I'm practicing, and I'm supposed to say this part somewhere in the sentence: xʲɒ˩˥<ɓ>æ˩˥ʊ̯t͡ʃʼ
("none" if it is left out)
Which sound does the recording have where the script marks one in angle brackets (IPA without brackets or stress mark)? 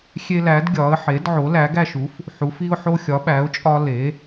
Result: ɓ